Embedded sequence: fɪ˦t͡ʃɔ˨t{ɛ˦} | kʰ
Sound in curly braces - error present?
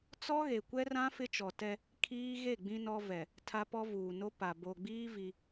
no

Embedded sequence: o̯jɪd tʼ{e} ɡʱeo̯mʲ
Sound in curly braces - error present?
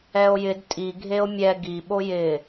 yes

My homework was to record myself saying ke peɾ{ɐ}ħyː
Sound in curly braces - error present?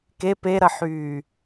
no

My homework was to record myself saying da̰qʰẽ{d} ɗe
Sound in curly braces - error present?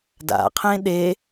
yes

